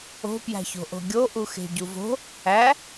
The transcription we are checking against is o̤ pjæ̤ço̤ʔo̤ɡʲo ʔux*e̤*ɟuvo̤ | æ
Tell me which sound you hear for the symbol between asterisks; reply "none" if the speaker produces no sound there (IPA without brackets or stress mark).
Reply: e̤